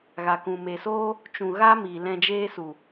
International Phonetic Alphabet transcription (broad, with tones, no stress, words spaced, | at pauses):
ɣa˨kũ˨me˨soː˦ | t͡ʃũ˨ɣa˦ miː˨lɛ̃˧d͡ʒeː˦su˨